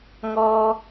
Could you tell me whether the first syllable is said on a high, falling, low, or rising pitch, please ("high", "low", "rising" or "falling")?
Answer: high